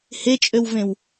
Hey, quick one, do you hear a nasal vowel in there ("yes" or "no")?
yes